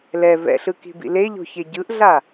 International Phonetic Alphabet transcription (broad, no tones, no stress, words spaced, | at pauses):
lɛ vɛ̰ɬɯki̤bḭ leʎo̤çe ɟɯʔɮa